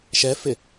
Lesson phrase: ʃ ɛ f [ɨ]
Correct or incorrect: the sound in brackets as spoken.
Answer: incorrect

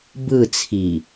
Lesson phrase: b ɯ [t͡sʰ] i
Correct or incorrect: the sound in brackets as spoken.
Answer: correct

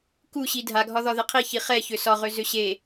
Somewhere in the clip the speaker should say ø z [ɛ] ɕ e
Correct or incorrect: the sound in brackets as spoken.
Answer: incorrect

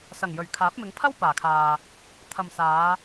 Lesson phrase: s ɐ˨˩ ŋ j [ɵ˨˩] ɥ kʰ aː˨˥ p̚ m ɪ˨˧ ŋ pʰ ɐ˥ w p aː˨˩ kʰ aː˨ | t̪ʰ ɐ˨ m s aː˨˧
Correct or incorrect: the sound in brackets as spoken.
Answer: correct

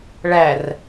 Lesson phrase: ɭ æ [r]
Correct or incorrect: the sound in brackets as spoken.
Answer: correct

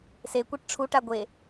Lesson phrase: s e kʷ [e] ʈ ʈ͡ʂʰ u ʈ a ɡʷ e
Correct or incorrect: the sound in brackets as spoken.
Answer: correct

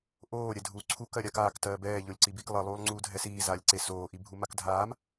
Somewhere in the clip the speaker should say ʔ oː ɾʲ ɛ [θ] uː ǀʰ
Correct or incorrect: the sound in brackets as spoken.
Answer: incorrect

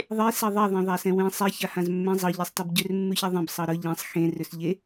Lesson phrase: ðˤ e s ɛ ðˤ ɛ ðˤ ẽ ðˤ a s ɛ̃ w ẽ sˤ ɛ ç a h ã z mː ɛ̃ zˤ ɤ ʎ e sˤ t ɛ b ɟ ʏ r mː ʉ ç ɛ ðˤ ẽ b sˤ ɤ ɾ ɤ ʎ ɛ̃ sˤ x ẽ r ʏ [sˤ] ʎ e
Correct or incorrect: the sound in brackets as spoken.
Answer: incorrect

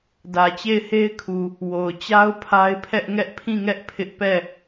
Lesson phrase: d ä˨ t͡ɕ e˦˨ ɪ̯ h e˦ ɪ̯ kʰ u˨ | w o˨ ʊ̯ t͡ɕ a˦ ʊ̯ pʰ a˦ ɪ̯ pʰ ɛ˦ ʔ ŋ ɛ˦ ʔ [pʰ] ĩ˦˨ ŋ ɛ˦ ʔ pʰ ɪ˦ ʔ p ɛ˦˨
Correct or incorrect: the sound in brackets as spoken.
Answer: correct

